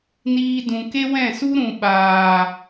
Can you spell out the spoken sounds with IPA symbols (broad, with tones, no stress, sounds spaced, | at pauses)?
n iː˦ d ũ˧ k e˦ w ɛ̃˦˨ s u˦ ɾ ũ˨ ɓ aː˨